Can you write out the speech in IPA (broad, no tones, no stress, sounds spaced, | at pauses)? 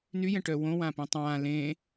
n y j ɛ̃ ʈ œ w õ w ã p ĩ tˤ ãː l ẽː